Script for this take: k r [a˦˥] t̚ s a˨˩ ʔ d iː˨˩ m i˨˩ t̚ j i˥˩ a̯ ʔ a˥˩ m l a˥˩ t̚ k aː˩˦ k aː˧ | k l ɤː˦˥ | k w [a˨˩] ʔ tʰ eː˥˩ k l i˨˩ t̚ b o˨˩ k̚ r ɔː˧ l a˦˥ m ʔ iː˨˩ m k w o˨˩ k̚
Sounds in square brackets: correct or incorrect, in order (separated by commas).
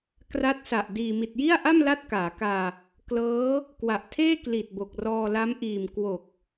correct, correct